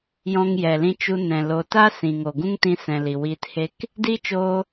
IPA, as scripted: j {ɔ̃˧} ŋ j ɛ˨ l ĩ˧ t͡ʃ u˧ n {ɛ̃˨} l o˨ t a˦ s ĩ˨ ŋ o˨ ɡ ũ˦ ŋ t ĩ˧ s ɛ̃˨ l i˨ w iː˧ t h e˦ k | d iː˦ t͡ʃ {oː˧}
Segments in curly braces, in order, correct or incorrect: correct, correct, correct

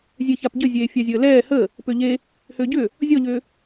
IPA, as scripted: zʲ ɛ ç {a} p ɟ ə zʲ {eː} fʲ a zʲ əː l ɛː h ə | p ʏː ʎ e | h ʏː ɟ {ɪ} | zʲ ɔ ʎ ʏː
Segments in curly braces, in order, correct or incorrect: correct, correct, incorrect

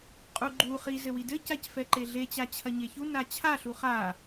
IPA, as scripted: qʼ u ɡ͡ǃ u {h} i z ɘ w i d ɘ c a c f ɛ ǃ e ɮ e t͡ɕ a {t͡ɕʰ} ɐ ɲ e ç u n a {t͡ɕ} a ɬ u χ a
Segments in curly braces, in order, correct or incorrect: incorrect, correct, incorrect

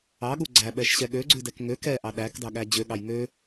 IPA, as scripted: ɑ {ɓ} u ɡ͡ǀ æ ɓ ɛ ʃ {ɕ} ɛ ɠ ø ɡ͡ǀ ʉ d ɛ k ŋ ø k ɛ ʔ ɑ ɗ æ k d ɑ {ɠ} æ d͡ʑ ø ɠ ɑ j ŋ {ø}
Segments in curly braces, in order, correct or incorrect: incorrect, correct, correct, correct

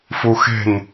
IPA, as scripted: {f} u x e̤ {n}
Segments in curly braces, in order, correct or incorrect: correct, correct

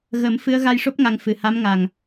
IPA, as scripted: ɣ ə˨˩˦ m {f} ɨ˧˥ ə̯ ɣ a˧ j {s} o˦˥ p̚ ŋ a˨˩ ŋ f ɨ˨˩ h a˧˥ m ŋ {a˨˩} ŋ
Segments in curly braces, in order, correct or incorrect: correct, incorrect, correct

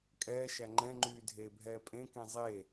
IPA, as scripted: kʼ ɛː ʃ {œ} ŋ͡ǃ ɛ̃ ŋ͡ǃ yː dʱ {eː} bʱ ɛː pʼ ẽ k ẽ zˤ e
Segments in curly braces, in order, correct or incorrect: incorrect, correct

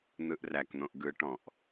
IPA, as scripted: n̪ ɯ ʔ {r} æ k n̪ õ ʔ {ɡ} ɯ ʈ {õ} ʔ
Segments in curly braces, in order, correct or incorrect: correct, correct, incorrect

